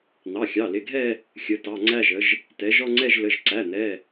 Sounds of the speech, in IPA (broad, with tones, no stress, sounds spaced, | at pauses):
n̪ ɑ˩˧˩ xʲ ɑ˩˧˩ l ɪ˩˧˩ ɡʱ ɛ˦˨ | xʲ ə˩˧˩ t ɑ˩˧˩ ŋ͡ǀ æ˦˨ ʒ ə˩˧ ʒ | t ɛ˩˧ ʒ ɔ˦˨ ŋ͡ǀ ɛ˦˨ ʒ l ə˩˧˩ ʒ ǀ æ˩˧˩ n̪ ɛ˩˧˩